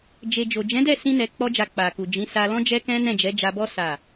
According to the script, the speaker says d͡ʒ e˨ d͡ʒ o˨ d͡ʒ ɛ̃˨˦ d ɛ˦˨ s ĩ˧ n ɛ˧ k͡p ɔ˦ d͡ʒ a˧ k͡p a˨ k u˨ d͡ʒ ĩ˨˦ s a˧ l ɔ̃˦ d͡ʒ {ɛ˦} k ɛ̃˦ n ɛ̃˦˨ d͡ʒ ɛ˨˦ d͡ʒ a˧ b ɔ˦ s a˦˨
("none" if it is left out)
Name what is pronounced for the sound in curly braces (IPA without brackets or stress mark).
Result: ɛ˦